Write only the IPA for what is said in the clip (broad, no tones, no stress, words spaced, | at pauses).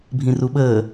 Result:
bʱĩruɓəː